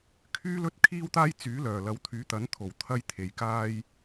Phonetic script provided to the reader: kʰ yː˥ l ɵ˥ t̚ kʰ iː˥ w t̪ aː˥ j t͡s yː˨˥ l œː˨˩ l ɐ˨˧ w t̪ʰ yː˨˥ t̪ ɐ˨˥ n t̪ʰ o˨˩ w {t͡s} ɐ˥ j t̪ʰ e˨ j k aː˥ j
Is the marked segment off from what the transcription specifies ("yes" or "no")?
yes